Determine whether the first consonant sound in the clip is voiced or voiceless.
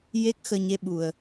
voiced